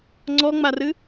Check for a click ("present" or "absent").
present